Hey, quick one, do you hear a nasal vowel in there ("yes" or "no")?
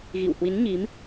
no